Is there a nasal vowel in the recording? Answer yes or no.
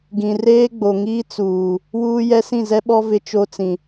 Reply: yes